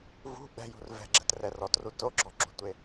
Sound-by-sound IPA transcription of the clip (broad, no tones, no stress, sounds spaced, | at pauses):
v ṳ ɓ ɛ̤ j ṳ r v ɛ̤ ɡ͡ǁ ɛ̤ t r ɛ r ɔ t r u t o ɡ͡ǁ ɔ ǁ ṳ tʷ e